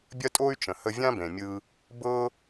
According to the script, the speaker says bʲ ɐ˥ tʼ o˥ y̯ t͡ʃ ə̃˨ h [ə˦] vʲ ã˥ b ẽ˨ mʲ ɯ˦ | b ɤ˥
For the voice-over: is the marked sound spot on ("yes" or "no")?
yes